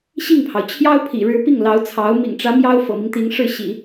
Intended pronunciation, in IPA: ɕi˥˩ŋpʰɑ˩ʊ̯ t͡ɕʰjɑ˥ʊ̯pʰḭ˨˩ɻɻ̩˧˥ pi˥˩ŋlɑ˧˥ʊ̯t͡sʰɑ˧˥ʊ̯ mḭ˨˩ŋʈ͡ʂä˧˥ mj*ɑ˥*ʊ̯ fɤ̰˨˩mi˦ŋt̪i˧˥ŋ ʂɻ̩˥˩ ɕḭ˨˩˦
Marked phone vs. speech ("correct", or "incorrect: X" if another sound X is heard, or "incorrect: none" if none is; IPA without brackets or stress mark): correct